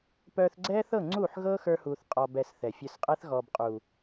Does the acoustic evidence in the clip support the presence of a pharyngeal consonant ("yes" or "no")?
yes